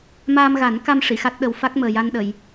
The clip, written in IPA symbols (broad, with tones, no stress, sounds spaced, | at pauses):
m aː˧ m ɣ a˨˩˦ n k a˧ m ʂ i˨˩˨ x a˦˥ t̚ ɗ ə˧ w f a˦˥ k̚ m əː˨˩ j a˧ n ɗ ə˨˩˨ j